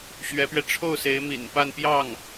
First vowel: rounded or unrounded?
unrounded